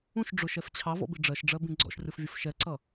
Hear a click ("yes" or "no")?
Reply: yes